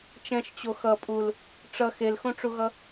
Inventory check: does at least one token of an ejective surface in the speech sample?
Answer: yes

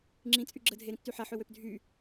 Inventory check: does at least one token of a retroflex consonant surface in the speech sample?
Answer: no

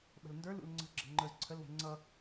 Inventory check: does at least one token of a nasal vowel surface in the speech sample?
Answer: no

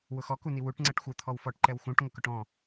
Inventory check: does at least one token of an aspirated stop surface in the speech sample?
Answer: yes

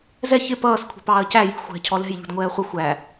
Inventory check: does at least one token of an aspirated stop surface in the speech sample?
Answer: yes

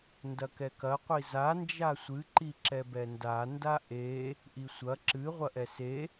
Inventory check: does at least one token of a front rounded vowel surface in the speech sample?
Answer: no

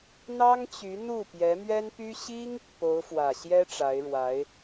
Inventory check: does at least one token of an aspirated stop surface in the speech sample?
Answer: no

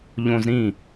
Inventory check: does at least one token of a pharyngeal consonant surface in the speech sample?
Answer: no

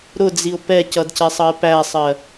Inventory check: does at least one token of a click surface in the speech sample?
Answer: no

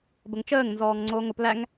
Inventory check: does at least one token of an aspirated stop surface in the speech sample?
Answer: no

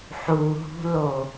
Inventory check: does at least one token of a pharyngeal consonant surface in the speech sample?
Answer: yes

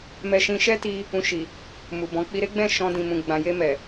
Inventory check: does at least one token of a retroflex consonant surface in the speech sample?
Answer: no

